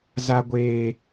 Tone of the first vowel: high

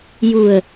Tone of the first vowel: low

